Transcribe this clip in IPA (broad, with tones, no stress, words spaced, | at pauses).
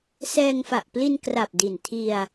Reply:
sɛː˧ŋfa˨˩ʔpli˧nkra˨˩p̚ di˨˩ntʰi˧a̯